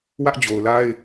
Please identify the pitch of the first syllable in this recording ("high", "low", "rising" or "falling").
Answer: high